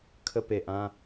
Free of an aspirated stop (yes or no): no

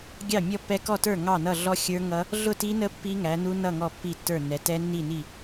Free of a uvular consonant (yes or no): yes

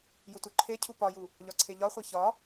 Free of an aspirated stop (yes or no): no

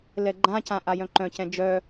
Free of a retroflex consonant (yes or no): yes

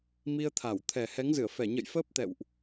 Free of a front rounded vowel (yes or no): yes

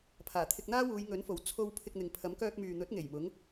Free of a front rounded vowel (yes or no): no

